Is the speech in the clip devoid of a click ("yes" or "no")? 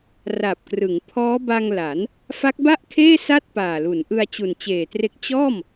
yes